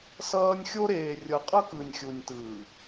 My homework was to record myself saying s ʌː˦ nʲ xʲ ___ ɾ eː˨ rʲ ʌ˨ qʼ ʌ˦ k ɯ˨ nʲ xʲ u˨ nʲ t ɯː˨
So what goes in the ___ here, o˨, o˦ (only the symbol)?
o˦